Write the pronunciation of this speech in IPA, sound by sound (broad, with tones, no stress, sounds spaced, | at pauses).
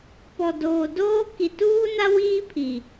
p ɔ˨ d oː˨ d oː˦ k i˨ t uː˦ n a˦ w iː˦ pʰ i˨